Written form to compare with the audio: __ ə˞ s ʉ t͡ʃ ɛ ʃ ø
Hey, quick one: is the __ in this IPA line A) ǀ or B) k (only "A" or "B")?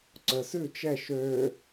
A